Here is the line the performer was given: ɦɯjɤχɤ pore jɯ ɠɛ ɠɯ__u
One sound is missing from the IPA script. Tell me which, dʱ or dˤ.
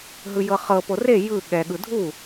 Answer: dʱ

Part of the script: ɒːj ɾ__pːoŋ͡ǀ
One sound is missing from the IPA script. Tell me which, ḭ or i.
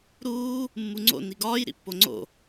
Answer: ḭ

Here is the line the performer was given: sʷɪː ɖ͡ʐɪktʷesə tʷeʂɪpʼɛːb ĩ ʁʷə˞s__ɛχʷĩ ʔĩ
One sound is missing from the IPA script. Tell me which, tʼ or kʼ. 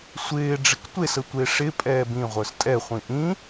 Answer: tʼ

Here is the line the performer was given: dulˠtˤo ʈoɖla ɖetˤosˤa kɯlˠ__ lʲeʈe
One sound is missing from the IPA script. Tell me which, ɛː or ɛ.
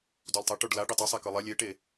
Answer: ɛ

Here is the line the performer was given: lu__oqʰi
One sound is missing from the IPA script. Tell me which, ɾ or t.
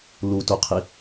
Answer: t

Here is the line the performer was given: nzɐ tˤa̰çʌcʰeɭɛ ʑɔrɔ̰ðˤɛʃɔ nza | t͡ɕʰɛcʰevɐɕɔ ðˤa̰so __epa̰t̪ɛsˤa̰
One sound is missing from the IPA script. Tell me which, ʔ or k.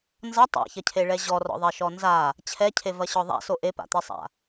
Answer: ʔ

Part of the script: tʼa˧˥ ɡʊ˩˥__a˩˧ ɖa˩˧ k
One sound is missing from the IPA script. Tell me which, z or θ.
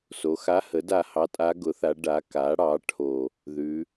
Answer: θ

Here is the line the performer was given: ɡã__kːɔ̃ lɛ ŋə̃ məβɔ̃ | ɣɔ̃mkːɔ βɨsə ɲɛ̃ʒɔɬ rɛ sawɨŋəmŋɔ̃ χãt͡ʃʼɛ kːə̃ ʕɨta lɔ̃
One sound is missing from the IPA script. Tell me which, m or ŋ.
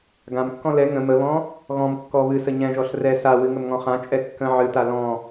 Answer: m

